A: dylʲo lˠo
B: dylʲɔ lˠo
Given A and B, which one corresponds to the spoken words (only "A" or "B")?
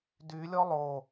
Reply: B